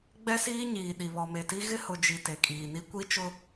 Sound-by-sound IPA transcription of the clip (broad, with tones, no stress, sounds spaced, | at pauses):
ɡ͡b ɛ˦ s iː˦ ɲ iː˨ ɗ i˨ β ɔ˨ m e˨ t i˦ ɣ ɪ˦ h ʊ˨ d͡ʒ i˨ t e˨ kʼ iː˨ n i˦ kʷ i˦ t͡ʃ ʊ˦